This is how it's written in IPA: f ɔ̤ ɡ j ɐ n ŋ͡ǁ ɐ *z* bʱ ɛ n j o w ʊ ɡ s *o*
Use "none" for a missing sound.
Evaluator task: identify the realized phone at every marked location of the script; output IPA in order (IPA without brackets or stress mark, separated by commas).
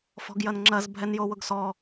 z, ɔ